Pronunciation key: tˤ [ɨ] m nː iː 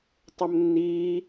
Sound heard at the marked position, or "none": ə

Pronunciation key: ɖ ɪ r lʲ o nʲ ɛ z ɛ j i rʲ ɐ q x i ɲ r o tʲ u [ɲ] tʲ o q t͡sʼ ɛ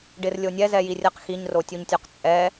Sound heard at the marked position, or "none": ɲ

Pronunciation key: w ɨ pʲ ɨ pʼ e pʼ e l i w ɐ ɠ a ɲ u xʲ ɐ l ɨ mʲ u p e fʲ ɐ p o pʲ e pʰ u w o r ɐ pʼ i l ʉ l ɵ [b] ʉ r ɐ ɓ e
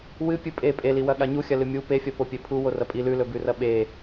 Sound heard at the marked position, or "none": b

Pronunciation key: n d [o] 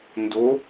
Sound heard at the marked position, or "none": o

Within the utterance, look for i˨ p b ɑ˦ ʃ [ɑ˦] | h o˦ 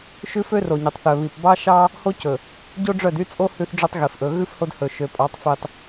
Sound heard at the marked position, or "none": ɑ˦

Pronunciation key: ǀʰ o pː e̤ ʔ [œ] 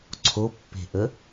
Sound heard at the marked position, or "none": ə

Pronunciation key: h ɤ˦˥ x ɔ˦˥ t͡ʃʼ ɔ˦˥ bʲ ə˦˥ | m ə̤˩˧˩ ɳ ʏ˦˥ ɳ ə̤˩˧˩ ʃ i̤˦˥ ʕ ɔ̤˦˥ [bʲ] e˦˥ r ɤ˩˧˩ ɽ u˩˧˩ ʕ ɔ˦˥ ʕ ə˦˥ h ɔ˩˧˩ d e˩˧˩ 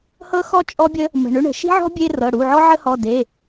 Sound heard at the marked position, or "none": bʲ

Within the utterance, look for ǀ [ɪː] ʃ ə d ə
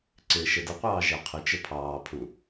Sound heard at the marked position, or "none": ɪː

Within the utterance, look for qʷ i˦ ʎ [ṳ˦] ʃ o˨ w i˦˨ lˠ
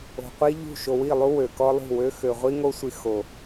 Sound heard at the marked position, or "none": ṳ˦˨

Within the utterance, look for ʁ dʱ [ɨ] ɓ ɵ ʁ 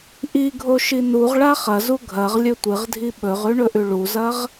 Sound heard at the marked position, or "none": i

